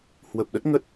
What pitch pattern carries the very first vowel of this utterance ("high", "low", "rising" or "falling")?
low